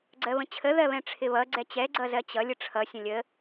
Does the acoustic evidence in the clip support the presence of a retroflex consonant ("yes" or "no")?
yes